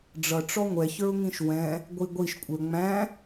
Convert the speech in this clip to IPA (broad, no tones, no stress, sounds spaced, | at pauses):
ɖ͡ʐ ʌ ʈ͡ʂ ɔ ŋʷ ɛ ç ə˞ ʊ̯ ŋ ĩ ʃ w ɛ̃ | ɡʷ i ɡʷ i ʃ kʷʼ ə˞ ŋ͡m æ̃